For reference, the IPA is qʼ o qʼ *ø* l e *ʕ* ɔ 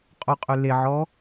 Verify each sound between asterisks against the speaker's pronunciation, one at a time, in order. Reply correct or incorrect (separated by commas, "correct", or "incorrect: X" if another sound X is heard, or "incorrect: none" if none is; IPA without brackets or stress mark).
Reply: correct, correct